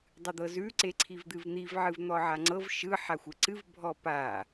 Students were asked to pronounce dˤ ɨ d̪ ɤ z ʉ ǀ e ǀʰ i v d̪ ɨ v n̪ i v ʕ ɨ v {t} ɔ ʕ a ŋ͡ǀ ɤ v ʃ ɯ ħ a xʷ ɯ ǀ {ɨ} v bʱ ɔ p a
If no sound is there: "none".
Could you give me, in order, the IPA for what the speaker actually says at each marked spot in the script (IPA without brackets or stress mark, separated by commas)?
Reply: n̪, ɨ